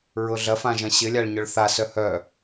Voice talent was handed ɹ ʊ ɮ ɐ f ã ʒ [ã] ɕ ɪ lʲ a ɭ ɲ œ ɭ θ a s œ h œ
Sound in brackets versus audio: incorrect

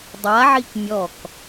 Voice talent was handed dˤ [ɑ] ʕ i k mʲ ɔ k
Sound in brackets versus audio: incorrect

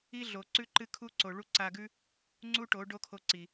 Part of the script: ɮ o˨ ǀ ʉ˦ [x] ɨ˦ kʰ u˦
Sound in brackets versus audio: incorrect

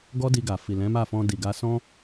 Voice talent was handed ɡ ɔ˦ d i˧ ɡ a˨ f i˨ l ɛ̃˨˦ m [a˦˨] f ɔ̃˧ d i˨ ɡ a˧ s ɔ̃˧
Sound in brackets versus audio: correct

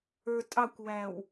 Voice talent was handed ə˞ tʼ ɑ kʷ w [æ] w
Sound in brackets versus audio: correct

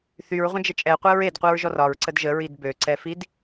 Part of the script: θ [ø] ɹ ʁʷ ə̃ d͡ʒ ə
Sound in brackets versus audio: incorrect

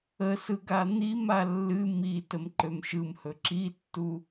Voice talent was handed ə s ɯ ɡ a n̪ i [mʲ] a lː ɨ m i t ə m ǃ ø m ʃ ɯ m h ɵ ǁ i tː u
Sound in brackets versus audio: incorrect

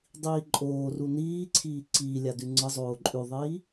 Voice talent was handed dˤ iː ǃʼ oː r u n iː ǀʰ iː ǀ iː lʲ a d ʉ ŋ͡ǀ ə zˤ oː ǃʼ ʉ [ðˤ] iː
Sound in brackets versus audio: correct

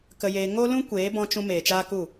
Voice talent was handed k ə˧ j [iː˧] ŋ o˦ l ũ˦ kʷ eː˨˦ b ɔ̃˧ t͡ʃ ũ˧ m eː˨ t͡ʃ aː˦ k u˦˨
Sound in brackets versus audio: incorrect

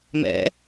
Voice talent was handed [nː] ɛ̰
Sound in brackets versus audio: incorrect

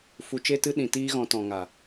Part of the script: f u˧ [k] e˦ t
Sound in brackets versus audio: incorrect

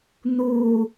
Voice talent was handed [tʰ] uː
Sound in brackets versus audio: incorrect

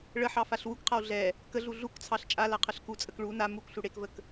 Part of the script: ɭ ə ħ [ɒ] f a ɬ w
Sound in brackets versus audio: incorrect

